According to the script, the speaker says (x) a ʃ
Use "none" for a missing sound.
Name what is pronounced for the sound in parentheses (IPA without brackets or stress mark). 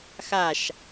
x